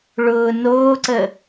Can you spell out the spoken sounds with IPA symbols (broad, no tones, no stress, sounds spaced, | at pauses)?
ɭ ʊː n oː ǀ ə